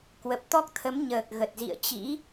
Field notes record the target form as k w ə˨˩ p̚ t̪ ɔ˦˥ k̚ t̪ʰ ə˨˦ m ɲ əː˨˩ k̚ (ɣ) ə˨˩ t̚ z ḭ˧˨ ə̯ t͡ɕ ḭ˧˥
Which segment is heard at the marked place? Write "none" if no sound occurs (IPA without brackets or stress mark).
ɣ